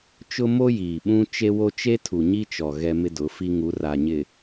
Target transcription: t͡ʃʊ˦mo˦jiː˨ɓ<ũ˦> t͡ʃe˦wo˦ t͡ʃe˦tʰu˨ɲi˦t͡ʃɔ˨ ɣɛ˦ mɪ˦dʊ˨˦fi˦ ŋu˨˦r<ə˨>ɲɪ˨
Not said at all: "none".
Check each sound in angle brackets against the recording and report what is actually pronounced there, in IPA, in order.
ũ˦, a˨

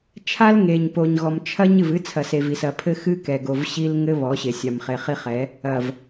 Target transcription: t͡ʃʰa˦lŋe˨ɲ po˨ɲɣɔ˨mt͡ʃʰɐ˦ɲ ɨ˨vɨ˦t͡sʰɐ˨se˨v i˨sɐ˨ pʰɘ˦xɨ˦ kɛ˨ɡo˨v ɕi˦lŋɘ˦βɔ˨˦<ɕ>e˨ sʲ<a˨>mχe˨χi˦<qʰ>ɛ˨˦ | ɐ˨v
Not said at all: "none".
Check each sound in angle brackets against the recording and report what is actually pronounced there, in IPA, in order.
ɕ, a˨, χ

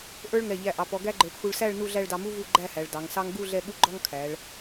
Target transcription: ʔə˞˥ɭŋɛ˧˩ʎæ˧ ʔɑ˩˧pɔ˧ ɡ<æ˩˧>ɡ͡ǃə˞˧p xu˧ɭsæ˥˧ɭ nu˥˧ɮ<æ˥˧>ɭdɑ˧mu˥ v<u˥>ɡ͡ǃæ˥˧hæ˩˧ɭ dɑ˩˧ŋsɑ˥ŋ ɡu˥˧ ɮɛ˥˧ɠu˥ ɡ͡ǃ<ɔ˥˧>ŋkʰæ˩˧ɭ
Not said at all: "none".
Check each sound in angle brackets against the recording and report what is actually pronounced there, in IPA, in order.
æ˥, æ˥˧, u˥˧, ɔ˥

